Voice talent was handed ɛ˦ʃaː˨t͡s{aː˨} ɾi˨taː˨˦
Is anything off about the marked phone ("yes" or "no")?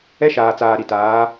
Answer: no